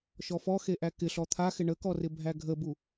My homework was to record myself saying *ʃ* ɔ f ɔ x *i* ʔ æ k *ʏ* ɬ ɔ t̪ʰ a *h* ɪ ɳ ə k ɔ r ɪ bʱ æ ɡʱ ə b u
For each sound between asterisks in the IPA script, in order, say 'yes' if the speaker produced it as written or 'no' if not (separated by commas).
yes, no, no, no